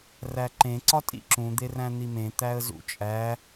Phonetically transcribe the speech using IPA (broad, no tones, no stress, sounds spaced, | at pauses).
r æ ǃ ẽ ǀ ɒ tʼ ḭ ǁ ũ d̪ e r æ̃ n̪ i m ẽ t̪ æ ə̯ z ṵ t͡ʃʼ æ